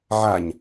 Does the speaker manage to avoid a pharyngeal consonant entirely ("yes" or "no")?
no